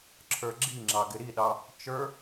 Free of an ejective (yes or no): yes